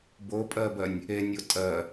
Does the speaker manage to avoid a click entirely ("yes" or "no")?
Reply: yes